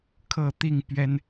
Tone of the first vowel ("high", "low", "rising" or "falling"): falling